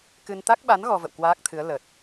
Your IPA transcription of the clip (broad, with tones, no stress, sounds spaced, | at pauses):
k ɨ˧ n t̪ a˦˥ k̚ ɓ a˨˦ n ɣ ɔ˧ v ə̰˧˨ w k w aː˦˥ k̚ t̪ʰ ɨ˨˦ ə̯ l ə˨˩ t̚